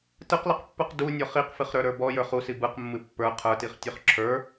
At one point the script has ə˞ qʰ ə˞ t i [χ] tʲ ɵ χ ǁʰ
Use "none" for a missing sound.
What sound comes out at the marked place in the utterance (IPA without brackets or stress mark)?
χ